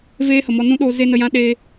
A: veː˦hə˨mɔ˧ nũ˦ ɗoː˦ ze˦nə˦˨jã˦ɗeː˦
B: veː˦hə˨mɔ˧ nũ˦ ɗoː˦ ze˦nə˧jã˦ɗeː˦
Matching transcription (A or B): B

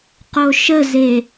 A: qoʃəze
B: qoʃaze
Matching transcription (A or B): A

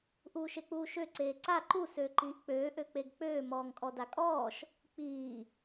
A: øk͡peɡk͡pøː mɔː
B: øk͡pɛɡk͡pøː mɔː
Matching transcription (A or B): A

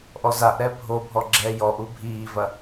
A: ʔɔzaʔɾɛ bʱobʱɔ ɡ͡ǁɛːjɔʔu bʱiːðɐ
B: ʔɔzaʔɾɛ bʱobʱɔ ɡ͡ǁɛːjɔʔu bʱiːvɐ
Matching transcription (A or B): B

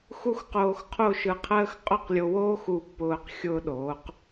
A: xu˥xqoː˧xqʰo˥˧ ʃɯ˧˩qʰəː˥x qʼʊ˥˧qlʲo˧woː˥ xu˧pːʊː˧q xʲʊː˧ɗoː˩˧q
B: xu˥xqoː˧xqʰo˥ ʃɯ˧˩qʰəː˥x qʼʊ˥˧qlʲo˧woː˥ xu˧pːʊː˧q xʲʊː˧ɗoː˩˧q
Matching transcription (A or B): A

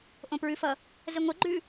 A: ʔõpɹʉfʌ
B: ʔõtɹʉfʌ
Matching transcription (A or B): A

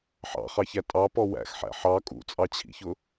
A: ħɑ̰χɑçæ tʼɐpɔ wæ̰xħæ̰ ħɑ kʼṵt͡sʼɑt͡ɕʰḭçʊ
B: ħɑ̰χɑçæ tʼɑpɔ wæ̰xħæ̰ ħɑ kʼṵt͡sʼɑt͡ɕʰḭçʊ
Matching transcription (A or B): B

